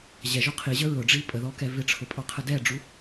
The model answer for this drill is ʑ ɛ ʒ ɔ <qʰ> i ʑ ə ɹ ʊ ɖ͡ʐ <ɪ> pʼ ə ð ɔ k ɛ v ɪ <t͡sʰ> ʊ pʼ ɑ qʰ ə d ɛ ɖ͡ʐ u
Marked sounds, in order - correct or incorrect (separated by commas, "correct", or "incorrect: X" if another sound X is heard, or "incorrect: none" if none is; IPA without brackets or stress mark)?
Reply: correct, incorrect: i, incorrect: ʈ͡ʂʰ